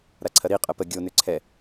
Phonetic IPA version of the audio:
ɾaǀʰɐɾi qʼəpə ɡʲo nʏǀʰɛ

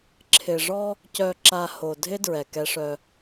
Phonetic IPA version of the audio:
ǁʰɪ˨ʐɔ˦ | cœ˨ǁa˨ ho˨ dʱɪ˦ dɹɛ˨kɛ˦ʂœ˦

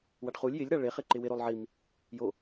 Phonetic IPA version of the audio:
waɖχulʲ jɪlʲ ɾaɭe χɪǃɪwɪ ɾolˠʕim | jo

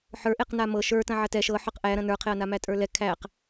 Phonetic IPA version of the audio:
ħə˞ʔeq namɤ ʃə˞ tɐ̃ʕɐtɛ ʃɤ ħə˞qʔæ ɾɐ̃nə˞qʰeɐ̯na mætʼə˞lɛ kʰæq

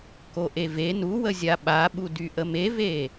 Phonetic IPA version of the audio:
koʔeve nuwəzʲa ɓaɓu dyʔəmeve

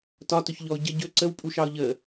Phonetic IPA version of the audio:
tɒtɵçʎɔʊ̯ ɟə ɟɵ ǀəwpʼuʃɑʊ̯ ʎə

